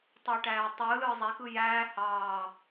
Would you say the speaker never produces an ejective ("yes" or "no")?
yes